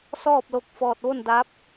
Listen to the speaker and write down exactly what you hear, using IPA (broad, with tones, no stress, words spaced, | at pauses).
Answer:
sɔː˥˨p̚lo˧k̚ fɔː˧˩t̚ʋo˥˨ndaː˧˥p̚